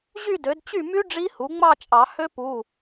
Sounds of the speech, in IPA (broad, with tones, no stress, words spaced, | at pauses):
ʑy˥˧dø˩˥d t͡ɕy˥˩my˦˥ ɖ͡ʐi˦˥hu˩˥ ŋ͡mɑ˥˧t͡ʃʼɑ˨˩˦ hø˦˥pu˩˧˩